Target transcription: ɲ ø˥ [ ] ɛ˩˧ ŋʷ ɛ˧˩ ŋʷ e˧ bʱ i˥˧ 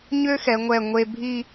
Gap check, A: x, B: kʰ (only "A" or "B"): A